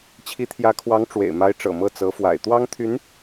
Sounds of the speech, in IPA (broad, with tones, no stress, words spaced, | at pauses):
t͡ɕʰi˧˥t̪ʰjä˧˥kʰwɑ˧˥ŋ ʈ͡ʂwḛ˨˩ɪ̯ma˧˥ɪ̯ʈ͡ʂɤ̰˨˩ mɤ˥˩t͡sɤ˧˥fwa̰˨˩ɪ̯ t̪wɑ˥ŋt̪ʰy˧˥n